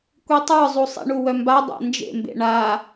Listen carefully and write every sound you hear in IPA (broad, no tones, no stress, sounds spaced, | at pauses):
kʷ i tˤ ə˞ zˤ u sˤ ḭ ɳ u w œ m b a dˤ a̰ n d͡ʒ ḛ m b ḛ ɳ a